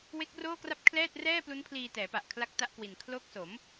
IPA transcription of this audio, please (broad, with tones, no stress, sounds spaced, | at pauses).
w e˦˥ k̚ r oː˥˩ k r a˥˩ p̚ kʰ l ɛː˥˩ t̚ r ɛː˥˩ p l u˦˥ n pʰ l iː˧ t ɛː˩˦ p a˨˩ ʔ kʰ l a˦˥ k̚ t a˦˥ ʔ k w i˨˩ n kʰ l o˦˥ k̚ s o˩˦ m